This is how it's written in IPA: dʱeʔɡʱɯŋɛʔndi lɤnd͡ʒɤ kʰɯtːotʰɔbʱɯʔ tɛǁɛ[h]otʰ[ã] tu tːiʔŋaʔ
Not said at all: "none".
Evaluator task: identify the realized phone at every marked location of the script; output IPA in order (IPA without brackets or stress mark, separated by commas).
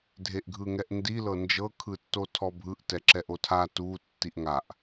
ʔ, a